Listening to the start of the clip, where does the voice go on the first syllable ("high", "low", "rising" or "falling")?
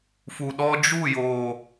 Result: low